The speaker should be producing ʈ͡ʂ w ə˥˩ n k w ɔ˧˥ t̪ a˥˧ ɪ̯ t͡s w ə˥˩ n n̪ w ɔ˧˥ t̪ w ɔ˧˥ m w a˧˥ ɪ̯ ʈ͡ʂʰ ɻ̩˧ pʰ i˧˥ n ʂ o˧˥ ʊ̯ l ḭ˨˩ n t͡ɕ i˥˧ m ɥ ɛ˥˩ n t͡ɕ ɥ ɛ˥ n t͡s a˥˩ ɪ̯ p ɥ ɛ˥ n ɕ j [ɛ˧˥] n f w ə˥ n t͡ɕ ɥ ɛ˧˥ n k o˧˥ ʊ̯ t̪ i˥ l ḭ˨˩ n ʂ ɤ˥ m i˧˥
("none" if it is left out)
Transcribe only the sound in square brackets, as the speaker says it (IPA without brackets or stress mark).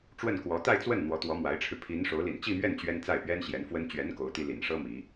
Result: ɛ˧˥